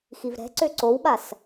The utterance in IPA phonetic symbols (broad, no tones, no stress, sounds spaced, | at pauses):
x i v ɾ ɛ̤ ǀ ø ǀ o w ɓ a s